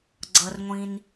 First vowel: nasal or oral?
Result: oral